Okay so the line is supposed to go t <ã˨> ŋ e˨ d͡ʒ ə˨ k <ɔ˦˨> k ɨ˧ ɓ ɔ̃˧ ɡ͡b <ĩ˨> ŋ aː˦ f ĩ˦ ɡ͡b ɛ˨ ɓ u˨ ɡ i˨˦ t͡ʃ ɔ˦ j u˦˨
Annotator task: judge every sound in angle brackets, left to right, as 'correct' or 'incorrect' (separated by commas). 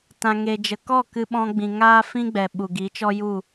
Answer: correct, correct, correct